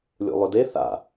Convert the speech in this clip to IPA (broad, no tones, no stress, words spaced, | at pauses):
lʲṵlˠɵde θa̰